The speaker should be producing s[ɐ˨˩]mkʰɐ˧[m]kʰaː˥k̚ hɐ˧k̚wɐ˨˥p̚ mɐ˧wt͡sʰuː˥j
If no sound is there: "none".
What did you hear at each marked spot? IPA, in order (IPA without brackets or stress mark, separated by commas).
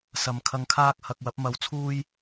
ɐ˨, ŋ